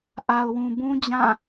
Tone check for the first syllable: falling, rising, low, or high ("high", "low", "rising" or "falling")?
low